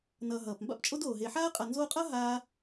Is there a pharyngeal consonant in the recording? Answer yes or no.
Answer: yes